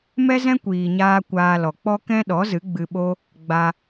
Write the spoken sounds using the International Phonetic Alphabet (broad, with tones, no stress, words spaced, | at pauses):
mɛ˦zɛ̃˦kʷiː˨ɲaː˧ kʷaː˧lɔ˨k͡pɔ˦ kɛ̃˦ɗɔ˨˦ zɨ˨˦ɡ͡bɨ˧ɓo˦ | ɡ͡ba˧